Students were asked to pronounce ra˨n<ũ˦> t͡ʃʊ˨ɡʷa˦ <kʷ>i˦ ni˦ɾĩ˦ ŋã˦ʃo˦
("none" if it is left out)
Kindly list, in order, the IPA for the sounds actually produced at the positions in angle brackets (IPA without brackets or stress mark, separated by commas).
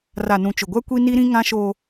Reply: ũ˨, kʷ